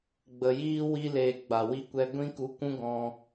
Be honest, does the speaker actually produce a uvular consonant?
no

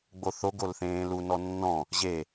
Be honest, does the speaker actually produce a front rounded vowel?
no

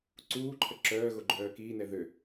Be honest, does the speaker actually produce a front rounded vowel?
yes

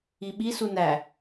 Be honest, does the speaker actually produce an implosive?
yes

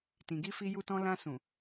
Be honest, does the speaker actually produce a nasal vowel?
yes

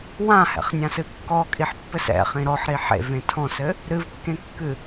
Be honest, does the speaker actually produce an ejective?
yes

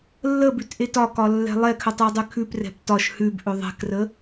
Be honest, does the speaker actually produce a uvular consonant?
no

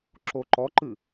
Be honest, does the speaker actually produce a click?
yes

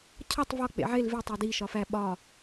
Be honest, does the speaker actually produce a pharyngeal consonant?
yes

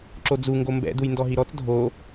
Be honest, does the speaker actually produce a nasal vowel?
no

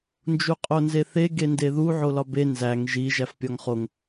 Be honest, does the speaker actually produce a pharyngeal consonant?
yes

